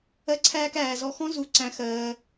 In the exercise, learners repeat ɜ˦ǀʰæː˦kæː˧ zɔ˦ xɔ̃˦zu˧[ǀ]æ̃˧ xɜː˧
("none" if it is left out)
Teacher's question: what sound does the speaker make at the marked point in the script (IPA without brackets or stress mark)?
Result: ǀ